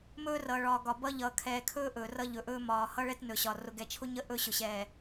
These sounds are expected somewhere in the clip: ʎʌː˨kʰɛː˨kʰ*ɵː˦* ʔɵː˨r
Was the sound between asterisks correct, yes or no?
yes